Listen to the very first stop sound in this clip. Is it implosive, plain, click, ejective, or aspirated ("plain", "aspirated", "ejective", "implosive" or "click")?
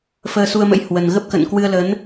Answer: plain